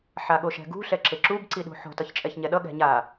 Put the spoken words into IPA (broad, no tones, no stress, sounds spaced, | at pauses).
ħ a ɠ o ʃ ɛ̤ ɡ ṳ ɬ ɛ ǁ e ǁ u b ǀ i ɗ ṳ ħ o̤ t ʌ ç t͡ʃʼ ɛ ç ɲ ɛ ɗ ʌ ɠ ɛ̤ ɲ a